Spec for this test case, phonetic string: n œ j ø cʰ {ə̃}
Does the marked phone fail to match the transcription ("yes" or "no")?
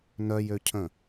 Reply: no